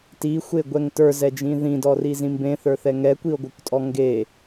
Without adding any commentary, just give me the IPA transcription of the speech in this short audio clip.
t i xʷ e ɡʷ ɛ ŋ t ə˞ z ɛ d͡ʒ ĩ ð ĩ d ɔ r i z ĩ m b ẽ θ ə˞ θ ɛ ŋ ɛ kʷ i o̯ ɡʷ ə˞ kʷ tʼ ɔ ŋ ɡ e

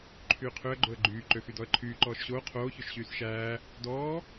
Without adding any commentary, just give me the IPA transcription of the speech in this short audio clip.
ǃʰ yː qʰ ø ə̯ ɡ͡ǃ o ə̯ ɡ͡ǃ yː ǃ ø x y d ɔ ə̯ ǃʰ yː ǃ ɔː ʃ ɕ oː qʰ oː ç ø ʃ ɕ yː s ʃ æː | d ɔː

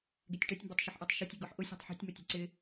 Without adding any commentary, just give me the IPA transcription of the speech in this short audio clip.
ɡ e tʲ ʈ œ tʲ m b o tˤ ʃ ʏ ħ ʔ a tˤ ʃ o tʲ i ɡ ɔ ħ ʔ ʊ sʲ o̤ tˤ ħ ṳ tʲ m ʊ tʲ o̤ ǀ ɪ

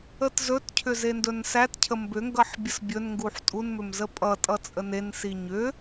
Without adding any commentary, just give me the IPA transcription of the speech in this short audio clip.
ə t z ɵ t cʰ ʏ z e n d ɵ n s æ t cʰ ə m b ʏ ŋ ɡ ʌ ħ bʲ ə s bʲ ɵ n ŋ ɡ u ħ tʼ u n m ʏ m z ə pʼ ʌ tʼ ʌ t͡sʼ ə n e n s i ɲ ʏ

